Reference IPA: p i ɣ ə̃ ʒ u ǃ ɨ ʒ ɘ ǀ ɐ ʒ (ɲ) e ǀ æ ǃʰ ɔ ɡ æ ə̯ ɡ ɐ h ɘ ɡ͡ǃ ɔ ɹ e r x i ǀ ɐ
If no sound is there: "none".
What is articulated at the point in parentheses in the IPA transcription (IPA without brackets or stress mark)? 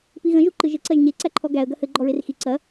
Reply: ɲ